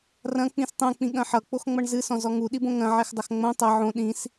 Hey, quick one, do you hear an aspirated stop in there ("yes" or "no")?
no